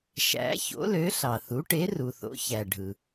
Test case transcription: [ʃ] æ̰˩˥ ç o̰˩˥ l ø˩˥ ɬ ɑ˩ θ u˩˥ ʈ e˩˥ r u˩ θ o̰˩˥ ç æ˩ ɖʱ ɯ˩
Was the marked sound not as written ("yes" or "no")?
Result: no